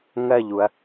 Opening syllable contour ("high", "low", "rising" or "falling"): falling